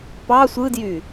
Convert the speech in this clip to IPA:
p ɑ sʷ ɯ d j y

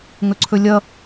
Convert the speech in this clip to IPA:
ŋ ɵ ǀʰ ɵ lʲ ʌ

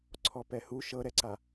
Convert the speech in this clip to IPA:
ǀʰ ɔ p ɛ h u ʃ ɤ ɾ ɛ ǀ a

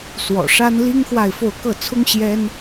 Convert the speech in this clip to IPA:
s w ɔ̰˨˩ ʂ a˥ n l i˥ ŋ x w a˥˧ ɪ̯ f o˥˧ ʊ̯ k ɤ˥˩ t͡sʰ ʊ˥ ŋ ɕ j ɛ˥ n

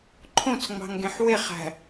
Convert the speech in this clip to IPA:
ǃʰ õ t͡s ŋ͡m ɑ̤ ŋ ɡ ẽ ħ w e χ æ̤

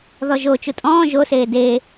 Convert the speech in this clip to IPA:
ð ɔ ʒ o t͡ʃ u tʼ ɔ̃ː ʒ o s eː d eː

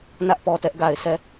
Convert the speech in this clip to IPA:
n ä˦ ʔ p ɔ˨ t ɛ˦ ʔ ɡ a˨ ɪ̯ sʰ ɛ˦˨

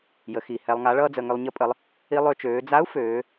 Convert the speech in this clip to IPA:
j ə˩˧ x i˩ h ɛ˧ lˠ ŋ a˧˥ ɭ ʌː˥ d͡z ə˧ ŋ ʏ˧ lˠ ɲ ə˧˥ pʼ ə˩˧ lˠ | i˧ lˠ ø˧ t͡ʃ øː˩˧ d͡z a˧˥ u̯ f øː˩˧

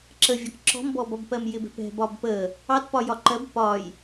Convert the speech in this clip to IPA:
ǁ ə vʲ ɒ k ǁ ɔ̤ m b ɔ b ɒ b p ɜ m j ɪ b ɛ̤ p ɛ̤ b ɒ b p ə | ɑ t p ɒ j ɒ ǃ ɜ b p ɒ j

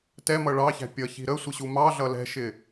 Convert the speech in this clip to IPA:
t ɛ m ʌ ɭ ɑ ç æ̤ pʲ ʌ ç i̤ ɾ ə sʷ ɪ ɕ u m ɑ ɮ ʌ l ɛ̤ ʃ ɪ

